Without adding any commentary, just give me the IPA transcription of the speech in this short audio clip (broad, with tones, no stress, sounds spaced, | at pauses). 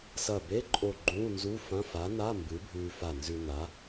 s ɐ˧˩ b e˧˥˧ ǃʼ o˧˩ ɡ͡ǃ ũː˧˥˧ n z u˧˥˧ f ɐ̃˧˥˧ f a˨˥ n a˧˥˧ m b ɨ˨˥ bʱ ʉː˧ f a˧˩ n z ʉ˧ n a˨˥